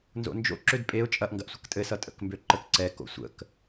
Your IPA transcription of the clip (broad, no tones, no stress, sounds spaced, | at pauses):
n z o̰ n d͡ʒ o̰ ǁ ø d pʼ e ʊ̯ t͡ʃʼ ɐ ʔ ŋ ɡ ɐ ʔ sʷ ə k tʼ ɘ s ʌ tʼ ə̰ k m b ø ǃ ə k ǀ ɛ k o̰ sʷ ə̰ k